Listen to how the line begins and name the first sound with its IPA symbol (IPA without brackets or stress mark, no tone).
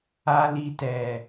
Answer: a